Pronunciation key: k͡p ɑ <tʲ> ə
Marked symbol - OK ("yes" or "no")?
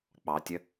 yes